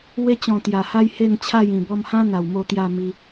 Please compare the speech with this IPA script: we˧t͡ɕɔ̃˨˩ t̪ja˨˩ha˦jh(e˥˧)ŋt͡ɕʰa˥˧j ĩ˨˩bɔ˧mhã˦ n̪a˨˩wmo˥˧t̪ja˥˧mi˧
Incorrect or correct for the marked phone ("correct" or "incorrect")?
correct